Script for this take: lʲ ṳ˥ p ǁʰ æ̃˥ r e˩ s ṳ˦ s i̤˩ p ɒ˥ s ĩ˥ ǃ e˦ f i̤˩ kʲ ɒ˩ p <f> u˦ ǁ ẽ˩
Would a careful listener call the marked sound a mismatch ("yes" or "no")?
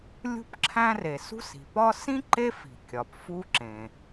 no